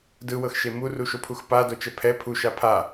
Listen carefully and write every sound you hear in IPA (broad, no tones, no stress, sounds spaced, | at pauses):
d ɯ w ɤ x ʃ e m u r u ʃ o pʰ u x p a d o t͡ʃ ɛ pʰ ɛ pʰ u ʃ a pʰ a